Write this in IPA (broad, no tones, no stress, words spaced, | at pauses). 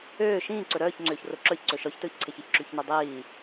øː ʃĩː ǀɵɾœːç ŋ͡ǀøːçroǁœçǀɵ ʃɔçtɵːçǀʰeç eçǁyçnɔdˤiː